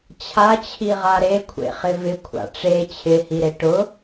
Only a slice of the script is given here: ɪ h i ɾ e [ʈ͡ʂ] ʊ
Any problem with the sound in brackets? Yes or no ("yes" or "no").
yes